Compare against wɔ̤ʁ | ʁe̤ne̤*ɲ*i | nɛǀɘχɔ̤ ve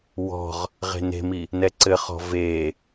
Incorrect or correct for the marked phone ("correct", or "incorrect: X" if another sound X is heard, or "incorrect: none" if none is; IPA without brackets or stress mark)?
incorrect: m